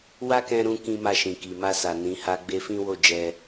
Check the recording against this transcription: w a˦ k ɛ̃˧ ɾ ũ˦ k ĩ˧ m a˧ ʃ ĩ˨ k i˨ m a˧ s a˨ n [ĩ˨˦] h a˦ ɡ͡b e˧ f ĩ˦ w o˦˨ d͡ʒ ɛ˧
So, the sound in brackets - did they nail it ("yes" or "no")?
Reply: yes